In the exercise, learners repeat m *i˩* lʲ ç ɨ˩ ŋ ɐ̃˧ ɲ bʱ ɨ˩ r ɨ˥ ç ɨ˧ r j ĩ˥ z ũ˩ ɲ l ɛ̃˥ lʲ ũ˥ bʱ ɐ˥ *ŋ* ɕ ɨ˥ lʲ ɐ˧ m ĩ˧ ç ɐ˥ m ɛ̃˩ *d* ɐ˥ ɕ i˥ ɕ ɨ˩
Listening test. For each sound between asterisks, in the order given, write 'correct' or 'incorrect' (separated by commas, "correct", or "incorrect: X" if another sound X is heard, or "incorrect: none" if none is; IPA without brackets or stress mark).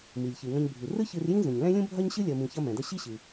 correct, incorrect: ɲ, correct